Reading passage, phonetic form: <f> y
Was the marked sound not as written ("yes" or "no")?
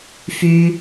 no